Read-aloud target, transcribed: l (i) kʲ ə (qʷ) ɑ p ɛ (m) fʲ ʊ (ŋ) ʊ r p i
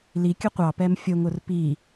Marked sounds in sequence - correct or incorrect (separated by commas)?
correct, correct, correct, correct